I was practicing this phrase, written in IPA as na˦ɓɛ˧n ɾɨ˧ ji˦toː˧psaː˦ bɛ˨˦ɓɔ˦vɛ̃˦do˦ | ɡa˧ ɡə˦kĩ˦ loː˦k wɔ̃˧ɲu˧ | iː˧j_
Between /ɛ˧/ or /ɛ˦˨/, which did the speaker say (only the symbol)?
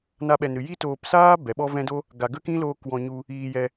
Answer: ɛ˧